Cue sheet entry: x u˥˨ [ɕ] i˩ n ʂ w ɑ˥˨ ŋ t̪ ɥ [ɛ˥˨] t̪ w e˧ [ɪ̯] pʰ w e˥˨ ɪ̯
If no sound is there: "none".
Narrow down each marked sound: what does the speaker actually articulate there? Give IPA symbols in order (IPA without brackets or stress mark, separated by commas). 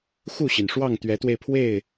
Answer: ɕ, ɛ˨˦, ɪ̯